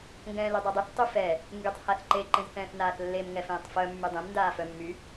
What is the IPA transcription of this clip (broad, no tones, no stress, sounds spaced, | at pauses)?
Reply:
ŋ ɡ ɛ̃ː l y dˤ œ dˤ y θ tˤ y f ɛ | ŋ ɡ y tˤ h a θ ǃ e ǃ ẽ z θ ɛ̃ː θ n aː θ lː e m ŋ ɛ f ẽː tˤ f œ mː y dˤ ẽ m n d aː f œ mː y